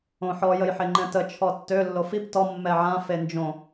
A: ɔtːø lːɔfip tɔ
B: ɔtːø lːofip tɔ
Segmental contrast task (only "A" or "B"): B